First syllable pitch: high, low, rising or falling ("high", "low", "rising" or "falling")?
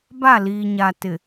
falling